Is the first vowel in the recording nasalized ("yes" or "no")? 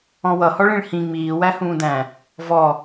yes